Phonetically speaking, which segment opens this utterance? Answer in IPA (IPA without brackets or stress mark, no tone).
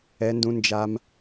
ɛ